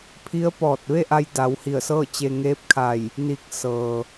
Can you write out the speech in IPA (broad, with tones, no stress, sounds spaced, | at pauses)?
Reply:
pʰ i˧˥ ə̯ p ɔː˧˩ t̚ ʋ e˥˨ ʔ a˧ j d a˩˧ w h i˧˩ ə̯ s ɤː˥˨ t͡ɕ e˧ ŋ eː˧˥ p̚ kʰ a˧˩ j | n i˧˩ k̚ s ɤː˩